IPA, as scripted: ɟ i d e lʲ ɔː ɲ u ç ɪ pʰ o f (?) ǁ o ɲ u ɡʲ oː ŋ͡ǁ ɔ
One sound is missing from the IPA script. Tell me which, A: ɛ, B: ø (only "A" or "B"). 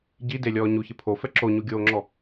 A